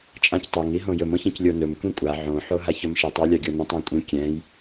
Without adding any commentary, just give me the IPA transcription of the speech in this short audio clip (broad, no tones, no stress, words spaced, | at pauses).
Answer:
t͡ʃʼãctˤɵŋ iɦõjɵm õçĩclʲonɵm kʷĩkʷʼa ʕõ ħoɦaçɵmʃitˤ ɛlʲaɡʲonĩtˤ ãkʷʼĩ kʲɛ̃j